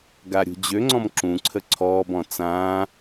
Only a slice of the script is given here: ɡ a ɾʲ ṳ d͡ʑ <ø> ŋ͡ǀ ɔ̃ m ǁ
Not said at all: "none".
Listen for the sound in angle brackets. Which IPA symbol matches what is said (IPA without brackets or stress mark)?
ø